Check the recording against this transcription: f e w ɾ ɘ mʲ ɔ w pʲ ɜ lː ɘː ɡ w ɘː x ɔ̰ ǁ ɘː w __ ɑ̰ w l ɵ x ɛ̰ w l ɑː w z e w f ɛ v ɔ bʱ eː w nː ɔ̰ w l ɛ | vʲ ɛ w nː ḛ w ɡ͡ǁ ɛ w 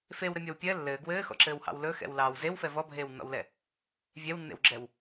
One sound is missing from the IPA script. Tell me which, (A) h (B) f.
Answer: A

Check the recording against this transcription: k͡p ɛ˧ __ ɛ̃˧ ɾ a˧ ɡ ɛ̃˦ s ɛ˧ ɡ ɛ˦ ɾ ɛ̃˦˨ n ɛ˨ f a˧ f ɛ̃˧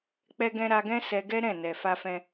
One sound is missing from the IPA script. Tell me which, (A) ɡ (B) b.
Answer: A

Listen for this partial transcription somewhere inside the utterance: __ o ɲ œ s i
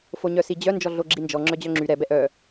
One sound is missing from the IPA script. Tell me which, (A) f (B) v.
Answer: A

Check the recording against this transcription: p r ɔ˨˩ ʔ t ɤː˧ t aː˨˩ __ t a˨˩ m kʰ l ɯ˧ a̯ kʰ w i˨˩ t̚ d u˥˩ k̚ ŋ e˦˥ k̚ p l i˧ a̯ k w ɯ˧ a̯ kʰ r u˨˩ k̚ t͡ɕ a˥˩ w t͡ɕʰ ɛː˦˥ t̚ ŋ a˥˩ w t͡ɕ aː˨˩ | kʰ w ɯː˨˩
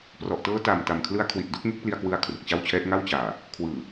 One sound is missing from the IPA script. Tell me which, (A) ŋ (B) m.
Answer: B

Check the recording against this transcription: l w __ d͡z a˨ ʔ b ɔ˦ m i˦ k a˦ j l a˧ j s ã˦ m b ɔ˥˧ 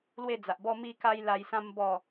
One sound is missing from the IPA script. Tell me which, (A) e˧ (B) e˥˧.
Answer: B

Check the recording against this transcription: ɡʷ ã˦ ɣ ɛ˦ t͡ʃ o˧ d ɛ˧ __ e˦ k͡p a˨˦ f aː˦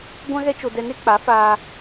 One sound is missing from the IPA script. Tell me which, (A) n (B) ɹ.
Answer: A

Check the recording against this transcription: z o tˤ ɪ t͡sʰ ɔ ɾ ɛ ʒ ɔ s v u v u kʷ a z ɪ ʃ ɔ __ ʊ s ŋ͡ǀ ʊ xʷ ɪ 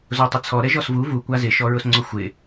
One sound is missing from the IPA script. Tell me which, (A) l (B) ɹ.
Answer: B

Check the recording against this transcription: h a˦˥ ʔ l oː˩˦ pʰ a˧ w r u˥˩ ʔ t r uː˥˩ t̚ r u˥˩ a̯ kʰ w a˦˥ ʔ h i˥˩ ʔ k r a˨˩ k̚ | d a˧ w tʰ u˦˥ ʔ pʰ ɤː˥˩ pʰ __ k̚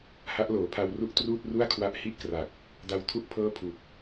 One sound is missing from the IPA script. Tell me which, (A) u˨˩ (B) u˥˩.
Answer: A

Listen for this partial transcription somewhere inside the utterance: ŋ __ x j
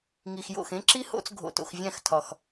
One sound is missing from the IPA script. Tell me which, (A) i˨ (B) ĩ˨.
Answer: A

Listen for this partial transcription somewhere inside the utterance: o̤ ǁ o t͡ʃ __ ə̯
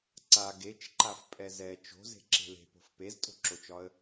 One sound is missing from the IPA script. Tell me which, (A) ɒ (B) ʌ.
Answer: A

